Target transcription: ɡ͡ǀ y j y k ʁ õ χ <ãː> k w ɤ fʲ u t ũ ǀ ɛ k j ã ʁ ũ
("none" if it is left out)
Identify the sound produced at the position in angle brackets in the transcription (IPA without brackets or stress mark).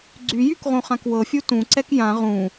ã